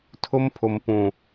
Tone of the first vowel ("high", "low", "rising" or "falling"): high